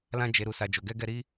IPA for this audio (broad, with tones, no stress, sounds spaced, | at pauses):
l ã˧ d͡ʒ e˨ ɾ u˨ s a˨ d͡ʒ o˨ ɡ ɛ˧ ɡ ɛ˧ ɾ i˦